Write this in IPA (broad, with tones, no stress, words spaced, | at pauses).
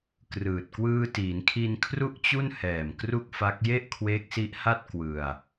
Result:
krɯː˨˩t̚ kwɯː˧tiː˩˦nkʰi˧nkʰru˥˩ʔ t͡ɕu˥˩nhɛː˨˩m kru˥˩k̚fa˦˥k̚ je˥˩ʔkʰwe˦˥k̚si˦˥ʔha˥˩t̚ kwɯ˧a̯